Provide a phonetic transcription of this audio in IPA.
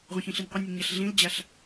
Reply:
ʁʷ ə̃ ç ĩ ɬ i nʲ qʷ ə nʲ ə ɲ a ɬ ɮ ĩ l d͡ʑ a ɬ

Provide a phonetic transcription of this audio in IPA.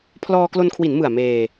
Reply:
pʰ l ɔː˧ k l o˧ n kʰ w i˩˦ n m ɯ˨˩ a̯ m eː˧

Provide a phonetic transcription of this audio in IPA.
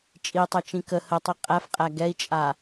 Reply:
t͡ʃʼ i tˤ ɛ t͡ʃ ĩ k ə h ə tˤ i qʼ æ f qʼ æ ɡ ɛ i̯ t͡ʃʼ a

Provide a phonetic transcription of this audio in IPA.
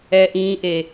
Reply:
ɛː˦ ʔ ĩː˦ ʔ e˦

